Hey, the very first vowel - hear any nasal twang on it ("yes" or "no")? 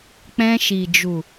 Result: yes